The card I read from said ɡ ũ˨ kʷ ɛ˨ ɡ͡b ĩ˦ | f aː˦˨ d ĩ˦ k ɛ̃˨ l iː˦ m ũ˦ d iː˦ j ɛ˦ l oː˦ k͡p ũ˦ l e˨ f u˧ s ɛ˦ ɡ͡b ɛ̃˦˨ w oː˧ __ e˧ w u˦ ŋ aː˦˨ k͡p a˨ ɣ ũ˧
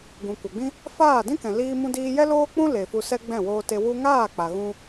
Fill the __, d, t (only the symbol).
t